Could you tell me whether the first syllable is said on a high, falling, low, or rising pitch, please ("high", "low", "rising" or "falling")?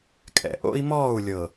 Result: low